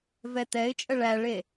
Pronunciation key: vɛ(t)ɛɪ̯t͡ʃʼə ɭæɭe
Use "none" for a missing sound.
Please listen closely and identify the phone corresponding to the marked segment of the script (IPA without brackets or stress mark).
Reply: t